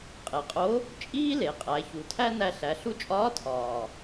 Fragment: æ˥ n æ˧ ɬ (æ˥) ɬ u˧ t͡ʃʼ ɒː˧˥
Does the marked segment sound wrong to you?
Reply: yes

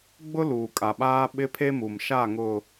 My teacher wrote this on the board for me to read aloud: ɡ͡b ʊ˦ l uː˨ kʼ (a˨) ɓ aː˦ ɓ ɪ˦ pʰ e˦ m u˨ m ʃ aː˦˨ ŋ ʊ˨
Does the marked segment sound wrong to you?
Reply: no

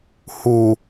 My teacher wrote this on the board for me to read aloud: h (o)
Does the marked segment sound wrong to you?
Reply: yes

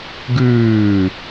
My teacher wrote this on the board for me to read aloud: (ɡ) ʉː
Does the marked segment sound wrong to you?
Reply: no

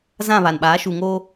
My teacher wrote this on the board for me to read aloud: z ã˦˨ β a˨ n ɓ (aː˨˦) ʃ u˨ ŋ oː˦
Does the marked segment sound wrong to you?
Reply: no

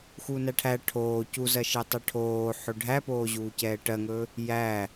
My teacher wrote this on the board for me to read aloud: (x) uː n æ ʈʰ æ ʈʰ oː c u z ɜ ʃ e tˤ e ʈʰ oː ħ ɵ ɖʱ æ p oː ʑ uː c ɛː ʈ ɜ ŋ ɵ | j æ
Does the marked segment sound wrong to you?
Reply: no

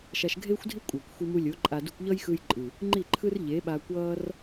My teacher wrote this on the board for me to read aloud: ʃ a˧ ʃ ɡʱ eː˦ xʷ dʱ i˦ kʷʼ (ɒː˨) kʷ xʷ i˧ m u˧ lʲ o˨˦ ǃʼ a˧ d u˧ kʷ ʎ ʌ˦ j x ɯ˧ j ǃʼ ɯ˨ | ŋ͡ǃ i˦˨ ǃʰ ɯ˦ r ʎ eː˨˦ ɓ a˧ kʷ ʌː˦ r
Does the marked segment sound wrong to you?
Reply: yes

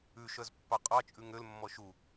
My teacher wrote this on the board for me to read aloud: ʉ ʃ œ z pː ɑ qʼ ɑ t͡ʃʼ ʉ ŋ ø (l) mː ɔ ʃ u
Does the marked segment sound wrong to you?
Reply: no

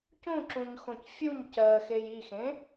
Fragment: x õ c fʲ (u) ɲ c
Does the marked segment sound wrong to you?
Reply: no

